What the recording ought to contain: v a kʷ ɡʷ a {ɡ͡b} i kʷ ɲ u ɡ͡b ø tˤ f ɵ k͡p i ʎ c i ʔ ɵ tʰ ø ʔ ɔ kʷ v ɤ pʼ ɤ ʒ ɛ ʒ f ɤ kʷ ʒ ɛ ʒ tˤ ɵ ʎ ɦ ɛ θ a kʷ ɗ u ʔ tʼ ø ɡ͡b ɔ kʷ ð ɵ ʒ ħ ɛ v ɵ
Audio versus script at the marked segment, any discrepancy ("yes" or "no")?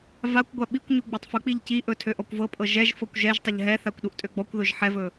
yes